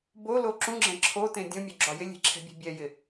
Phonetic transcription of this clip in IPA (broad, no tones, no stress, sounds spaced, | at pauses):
b o l o ǁ ũ ɡ͡ǁ ɛ̃ ǁʰ o t ẽ dʲ õ mʲ o ɡ͡ǁ ɒ j ɪ lʲ e̤ ǁʰ ɛ̤ bʲ e̤ bʲ ɛ j ɪ